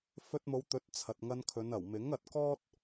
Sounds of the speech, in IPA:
fɵ˧t̚mo˨˧wt̪ɵ˨˥t̚ t͡sʰɐ˨t̚ŋɐ˧nkʰɵ˨˧nɐ˨˩w mɪ˨˥ŋɐ˨t̚kɔː˥t̚

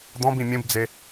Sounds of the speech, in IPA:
d̪ɔ̃bĩ mʲũbd͡ze

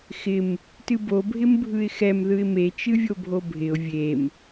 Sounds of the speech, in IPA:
xɪm | tɨbo bʱɪmbʱɯɪ̯xɛm ðɯɪ̯me t͡ʃɨvʲobʱobʱɪʊ̯ vʲem

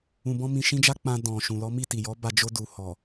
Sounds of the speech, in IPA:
ũ˧bɔ̃˦ mĩ˧ʃĩ˦d͡ʒa˦k͡pã˧ dɔ̃˨ ʃũ˨lɔ˨˦mi˦˨ ti˨jɔ˨˦ ba˧ d͡ʒo˧du˨ hɔ˨

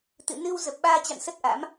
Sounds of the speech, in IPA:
t̪ɨ̰˧˨ nɨ˧w zə˨˩p̚ɓaː˧t͡ɕa̰˧˨n sə˦˥t̚ʔa̰˧˥m

